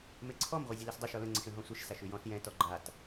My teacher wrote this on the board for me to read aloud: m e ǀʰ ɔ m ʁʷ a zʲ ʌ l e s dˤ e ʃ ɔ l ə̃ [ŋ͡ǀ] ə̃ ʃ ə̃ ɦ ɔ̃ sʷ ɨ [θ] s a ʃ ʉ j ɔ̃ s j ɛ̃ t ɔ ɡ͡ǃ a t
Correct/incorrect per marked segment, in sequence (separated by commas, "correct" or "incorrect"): correct, incorrect